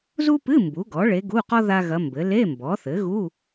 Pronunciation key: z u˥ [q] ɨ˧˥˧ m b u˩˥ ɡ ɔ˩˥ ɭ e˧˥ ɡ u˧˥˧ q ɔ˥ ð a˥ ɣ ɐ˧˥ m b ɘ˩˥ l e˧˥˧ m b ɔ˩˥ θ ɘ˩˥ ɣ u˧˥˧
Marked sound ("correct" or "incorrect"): incorrect